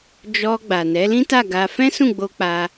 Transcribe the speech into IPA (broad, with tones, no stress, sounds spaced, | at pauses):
d͡ʒ ɔ˧ ɡ͡b a˨ n ɛ˨˦ l ĩ˦ t a˦˨ ɡ a˧ f ɛ̃˦ s ũ˦˨ ɡ͡b o˧ k͡p a˧